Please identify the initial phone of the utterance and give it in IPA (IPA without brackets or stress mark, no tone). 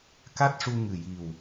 k